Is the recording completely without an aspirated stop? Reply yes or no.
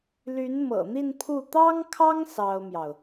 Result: no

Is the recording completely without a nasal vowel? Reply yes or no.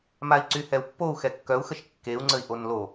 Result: yes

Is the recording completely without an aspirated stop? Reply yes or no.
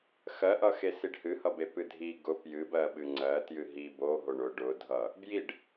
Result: yes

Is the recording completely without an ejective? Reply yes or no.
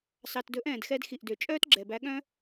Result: no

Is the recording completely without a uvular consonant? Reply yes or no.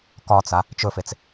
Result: yes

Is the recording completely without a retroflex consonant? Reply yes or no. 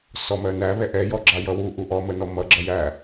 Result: yes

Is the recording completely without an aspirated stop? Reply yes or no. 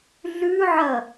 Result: yes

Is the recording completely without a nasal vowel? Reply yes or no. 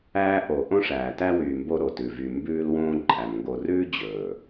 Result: no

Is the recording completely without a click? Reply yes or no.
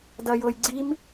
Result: no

